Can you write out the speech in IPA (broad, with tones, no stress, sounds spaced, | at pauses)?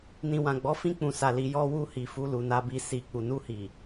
n ĩ˨ w ã˨ ɡ͡b ɔ˨˦ f ĩ˧ k͡p ũ˨ s a˨ l i˨ j ɔ˧ w u˧ h i˨ f u˧ l u˨ n a˧ b i˧ s i˨ k͡p u˨ n u˧ h i˨